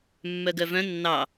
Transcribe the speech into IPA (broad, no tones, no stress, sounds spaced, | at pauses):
mː œ ɡ œ v œ̃ nː ɑ